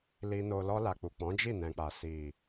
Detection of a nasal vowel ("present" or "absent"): present